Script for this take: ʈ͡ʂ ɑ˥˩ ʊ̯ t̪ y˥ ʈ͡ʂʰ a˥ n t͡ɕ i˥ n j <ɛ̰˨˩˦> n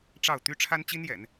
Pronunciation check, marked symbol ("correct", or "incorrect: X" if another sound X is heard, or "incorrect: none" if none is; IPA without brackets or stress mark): correct